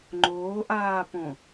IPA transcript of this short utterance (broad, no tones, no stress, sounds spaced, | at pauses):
ŋ͡ǃ oː ʔ aː p õ